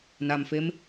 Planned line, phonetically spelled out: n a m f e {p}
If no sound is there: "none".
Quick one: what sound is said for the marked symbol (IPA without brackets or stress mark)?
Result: m